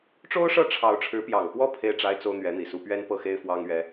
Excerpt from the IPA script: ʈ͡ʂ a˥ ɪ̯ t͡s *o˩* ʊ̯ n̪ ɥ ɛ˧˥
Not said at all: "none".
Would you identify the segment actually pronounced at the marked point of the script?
o˥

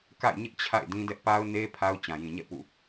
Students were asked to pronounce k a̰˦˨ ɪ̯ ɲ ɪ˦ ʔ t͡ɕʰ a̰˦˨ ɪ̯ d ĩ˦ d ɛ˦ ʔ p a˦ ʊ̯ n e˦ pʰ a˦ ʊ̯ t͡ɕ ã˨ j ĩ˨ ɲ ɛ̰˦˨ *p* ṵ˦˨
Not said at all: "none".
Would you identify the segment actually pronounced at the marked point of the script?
p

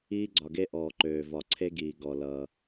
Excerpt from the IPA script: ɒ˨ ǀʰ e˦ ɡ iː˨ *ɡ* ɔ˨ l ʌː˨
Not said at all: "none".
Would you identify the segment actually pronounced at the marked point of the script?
ɡ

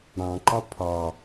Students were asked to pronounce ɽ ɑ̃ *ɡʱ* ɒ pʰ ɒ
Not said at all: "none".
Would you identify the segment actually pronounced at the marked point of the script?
ǃ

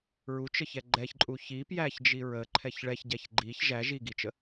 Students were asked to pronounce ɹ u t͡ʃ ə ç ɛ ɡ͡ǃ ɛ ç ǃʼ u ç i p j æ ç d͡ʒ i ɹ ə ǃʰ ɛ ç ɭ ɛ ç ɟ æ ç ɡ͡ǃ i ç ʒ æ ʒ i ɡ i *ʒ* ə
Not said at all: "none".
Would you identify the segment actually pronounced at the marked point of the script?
t͡ʃ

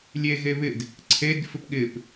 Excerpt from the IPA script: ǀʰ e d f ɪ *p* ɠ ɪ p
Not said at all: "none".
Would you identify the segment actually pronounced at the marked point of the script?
p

